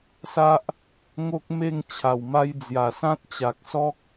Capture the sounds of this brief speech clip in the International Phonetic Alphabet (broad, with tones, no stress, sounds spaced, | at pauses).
s a˦ ʔ | ŋ o˦ k̚ m e˥˧ ŋ t͡ɕʰ a˨˩ w m a˧ j d͡z j a˨˩ s ã˦ t̚ t͡ɕ a˨ k̚ s ɔ˦ k̚